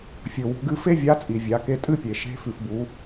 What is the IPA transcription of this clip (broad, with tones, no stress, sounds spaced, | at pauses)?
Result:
fʲ ɵ˩ w ṳ˩˧ ɡ ɨ˧ f e˥ vʲ a˧˥ t͡sʼ i˩ vʲ a˩˧ k e˧ tʼ ɨ˥ pʲ e˩ ʃ e̤˧˥ f ʉ˩ f b u˩˧